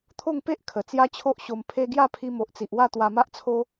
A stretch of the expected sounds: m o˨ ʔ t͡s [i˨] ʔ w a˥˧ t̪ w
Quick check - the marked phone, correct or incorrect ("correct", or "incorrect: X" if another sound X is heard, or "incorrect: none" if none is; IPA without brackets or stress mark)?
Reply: correct